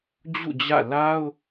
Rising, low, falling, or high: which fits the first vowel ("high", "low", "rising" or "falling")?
falling